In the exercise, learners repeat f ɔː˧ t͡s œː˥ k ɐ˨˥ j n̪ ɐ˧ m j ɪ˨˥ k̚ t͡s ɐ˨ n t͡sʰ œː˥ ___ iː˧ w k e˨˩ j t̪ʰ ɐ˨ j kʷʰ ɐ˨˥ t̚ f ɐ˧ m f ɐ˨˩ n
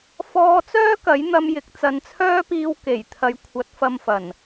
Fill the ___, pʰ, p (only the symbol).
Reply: p